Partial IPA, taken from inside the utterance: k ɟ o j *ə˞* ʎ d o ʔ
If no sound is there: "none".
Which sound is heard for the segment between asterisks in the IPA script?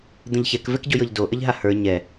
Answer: ɤ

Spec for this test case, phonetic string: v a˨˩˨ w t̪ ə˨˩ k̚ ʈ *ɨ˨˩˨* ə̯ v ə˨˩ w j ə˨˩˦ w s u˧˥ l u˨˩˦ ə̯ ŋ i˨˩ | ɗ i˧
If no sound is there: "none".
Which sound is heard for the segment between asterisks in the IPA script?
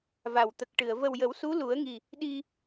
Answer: ɨ˨˩˨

